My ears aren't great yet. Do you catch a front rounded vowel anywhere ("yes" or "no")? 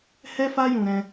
no